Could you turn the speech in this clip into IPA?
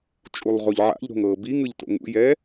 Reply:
t͡ʃʼ u lˠ ʁ o ʎ ʕ a̰ ʎ ɾ o̤ ŋ ɤː b i ŋ ɯ ʎ t o̰ ŋ ṵ j ɛː

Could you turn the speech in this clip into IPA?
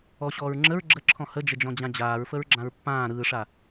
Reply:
ɔ ɕ ɔː ɹ ŋ͡ǁ ə ɹ ɡ͡ǁ ə ǁʰ ɔ̃ h ə d͡ʒ ə d͡ʒ ɔ̃ d͡ʑ ã d͡ʑ aː ɹ f ə ɹ ɡ͡ǁ ã ɹ pː ãː ɾ ɯː ʂ a

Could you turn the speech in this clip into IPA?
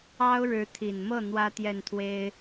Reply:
ɑ˥ ʊ̯ ɻ ɻ̩˧˥ t̪ʰ i˨˩ n m ɤ˥˩ n̪ w ä˥ t̪ j ɛ˥˩ n t̪ʰ w e˥ ɪ̯

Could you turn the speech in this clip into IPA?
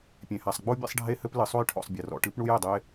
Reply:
pʲ ẽ˩ h a˩ sˤ ɡ͡b o˥ bʲ ɛ̰˥ sˤ ɖʱ e˥ h ɘ˥ p l ɨ˩ sˤ o˥ j ʈʰ ɔ̰˩ sˤ bʲ ɐ˩ r ɔ̰˩ ʈ ɨ˥ p ɳ u˥ j ɛ˩ dˤ e˥

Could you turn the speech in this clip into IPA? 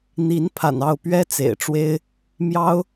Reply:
n̪ i˧˥ n pʰ a̰˨˩ n ɑ˥˩ ʊ̯ p ɥ ɛ˥ t͡s ḛ˨˩ ɪ̯ ʈ͡ʂ w e˥ ɪ̯ | m j ɑ˥ ʊ̯

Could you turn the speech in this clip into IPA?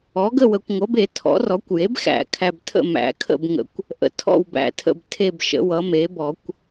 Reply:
ɔ˩˥ ɡ ə˥˨ w ə˨ kʷ ŋʷ ʌ˩˥ b e˨˩˦ tʰ ɔ̰˩˥ r ɔ˩˥ kʷ j e˩˥ b x æ̰˨˩˦ kʰ æ˨ b tʰ ə̰˥˨ m æ̰˨˩˦ kʰ ə̰˥˨ b ŋ ə̰˨ kʷ | ʔ ə̰˨ tʰ ɔ̰˥˨ w b æ̰˨ tʰ ə̰˥˨ b tʰ e˥˨ b ʃ ə̰˩˥ w ʌ˩˥ m e˩˥ b ɔ˨˩˦ kʷ

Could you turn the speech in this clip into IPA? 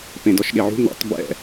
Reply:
p ẽ d ɔ ʃ ɠ e ʕ ṳ n̪ ɛ̰ tˤ b ɛ̰

